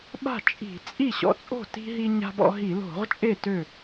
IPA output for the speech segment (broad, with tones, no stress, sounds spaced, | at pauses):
ɓ a̤˥˩ t͡ʃʼ i̤˧˩˧ t͡sʼ i˥˩ ɕ ɔ̰˧ t͡sʼ o̤˥˩ t i̤˧ ɦ i˧ ɲ a̤˧ b ɔ̰˧ ɦ i˧˩˧ l o̤˧˩˧ ʁ t͡ʃʼ e˥˩ t ø˥˩